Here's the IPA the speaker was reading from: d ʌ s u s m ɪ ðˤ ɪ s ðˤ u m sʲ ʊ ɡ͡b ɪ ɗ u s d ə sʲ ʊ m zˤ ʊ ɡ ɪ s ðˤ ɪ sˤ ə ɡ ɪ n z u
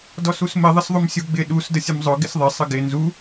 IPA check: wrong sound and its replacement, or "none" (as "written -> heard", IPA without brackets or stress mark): ʌ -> ɔ